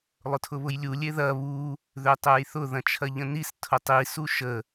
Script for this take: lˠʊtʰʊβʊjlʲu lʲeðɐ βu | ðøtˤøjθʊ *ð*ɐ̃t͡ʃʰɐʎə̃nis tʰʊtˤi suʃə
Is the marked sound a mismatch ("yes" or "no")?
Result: no